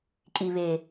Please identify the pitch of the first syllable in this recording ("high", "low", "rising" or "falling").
low